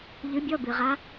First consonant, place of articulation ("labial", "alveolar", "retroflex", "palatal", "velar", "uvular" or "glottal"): palatal